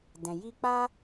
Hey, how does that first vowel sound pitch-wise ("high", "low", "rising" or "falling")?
low